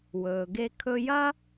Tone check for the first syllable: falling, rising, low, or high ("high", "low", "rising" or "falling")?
low